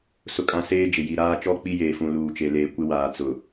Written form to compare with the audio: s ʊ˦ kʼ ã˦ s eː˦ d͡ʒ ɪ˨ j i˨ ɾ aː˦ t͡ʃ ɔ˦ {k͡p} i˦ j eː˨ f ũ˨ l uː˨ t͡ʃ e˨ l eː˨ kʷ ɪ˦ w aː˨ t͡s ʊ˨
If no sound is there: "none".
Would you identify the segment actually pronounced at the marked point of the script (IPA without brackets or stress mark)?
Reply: k͡p